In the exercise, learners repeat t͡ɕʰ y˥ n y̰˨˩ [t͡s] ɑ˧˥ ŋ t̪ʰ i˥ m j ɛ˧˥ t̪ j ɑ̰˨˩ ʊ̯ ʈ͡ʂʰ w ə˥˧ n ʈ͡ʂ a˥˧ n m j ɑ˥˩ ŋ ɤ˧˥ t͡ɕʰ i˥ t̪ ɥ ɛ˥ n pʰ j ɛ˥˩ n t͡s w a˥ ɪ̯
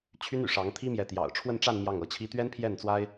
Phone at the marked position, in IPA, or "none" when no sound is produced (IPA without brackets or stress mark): ʂ